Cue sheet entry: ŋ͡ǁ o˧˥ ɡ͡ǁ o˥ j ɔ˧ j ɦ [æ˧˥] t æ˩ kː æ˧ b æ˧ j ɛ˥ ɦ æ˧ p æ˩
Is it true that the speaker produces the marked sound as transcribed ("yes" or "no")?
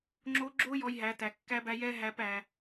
no